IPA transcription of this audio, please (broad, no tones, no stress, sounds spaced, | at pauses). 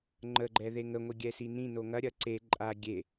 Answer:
ŋ͡ǃ ə ɡ͡ǃ ɛ ð e ŋ ə ŋʷ i ɡʲ ɛ s i n ĩ n o ŋ ɐ ɾʲ ɐ ǀ e ǃʼ a ɡʲ e